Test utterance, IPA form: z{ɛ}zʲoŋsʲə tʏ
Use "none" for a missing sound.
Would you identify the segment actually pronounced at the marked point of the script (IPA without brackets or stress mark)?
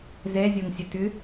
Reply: ɛ